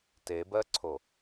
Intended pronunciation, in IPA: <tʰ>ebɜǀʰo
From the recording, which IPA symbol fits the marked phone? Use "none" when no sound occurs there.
t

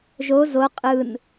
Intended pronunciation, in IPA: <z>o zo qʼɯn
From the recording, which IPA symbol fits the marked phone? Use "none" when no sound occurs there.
ʒ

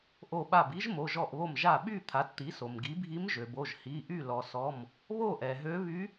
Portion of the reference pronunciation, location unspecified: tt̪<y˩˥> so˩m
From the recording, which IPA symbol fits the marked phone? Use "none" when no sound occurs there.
i˩˥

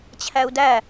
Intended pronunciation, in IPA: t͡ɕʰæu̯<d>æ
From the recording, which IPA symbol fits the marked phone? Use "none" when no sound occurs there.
d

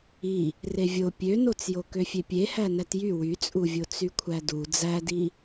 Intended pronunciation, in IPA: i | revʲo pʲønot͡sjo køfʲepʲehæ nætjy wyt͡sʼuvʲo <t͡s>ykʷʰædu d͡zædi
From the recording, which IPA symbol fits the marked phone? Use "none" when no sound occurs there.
t͡s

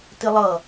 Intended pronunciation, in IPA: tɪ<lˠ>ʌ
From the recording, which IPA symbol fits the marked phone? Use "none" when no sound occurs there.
lˠ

